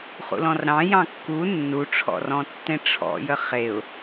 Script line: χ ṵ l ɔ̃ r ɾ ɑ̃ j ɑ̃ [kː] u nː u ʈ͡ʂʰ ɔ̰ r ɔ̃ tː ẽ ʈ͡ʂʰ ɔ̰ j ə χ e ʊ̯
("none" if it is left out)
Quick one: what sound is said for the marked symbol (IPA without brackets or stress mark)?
kː